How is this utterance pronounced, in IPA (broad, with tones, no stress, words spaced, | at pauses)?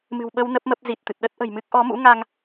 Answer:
mɨ̤˨˩wɓə˧w nə˦˥p̚mə˦˥p̚zi˨˩t̚t̪ɨ˨˩t̚ ɗə˦˥t̚ʔə̤˨˩jmɨ˦˥k̚ ʔɔ˨˦mṵ˧˥ŋa˧ŋ